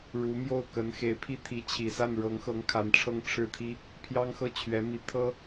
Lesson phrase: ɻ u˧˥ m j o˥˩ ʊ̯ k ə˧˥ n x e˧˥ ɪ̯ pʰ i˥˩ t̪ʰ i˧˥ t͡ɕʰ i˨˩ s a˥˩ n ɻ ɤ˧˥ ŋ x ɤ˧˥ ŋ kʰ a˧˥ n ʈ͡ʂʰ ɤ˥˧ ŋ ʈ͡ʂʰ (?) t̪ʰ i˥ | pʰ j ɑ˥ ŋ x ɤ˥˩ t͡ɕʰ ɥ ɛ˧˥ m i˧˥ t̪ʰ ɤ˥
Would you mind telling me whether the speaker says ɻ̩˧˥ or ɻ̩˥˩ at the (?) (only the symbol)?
ɻ̩˥˩